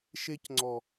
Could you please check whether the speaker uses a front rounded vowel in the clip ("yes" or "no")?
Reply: no